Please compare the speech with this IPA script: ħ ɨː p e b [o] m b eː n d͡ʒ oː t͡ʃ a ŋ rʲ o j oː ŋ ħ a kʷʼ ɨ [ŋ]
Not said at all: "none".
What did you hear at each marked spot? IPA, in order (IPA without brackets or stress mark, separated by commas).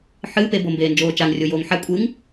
o, ŋ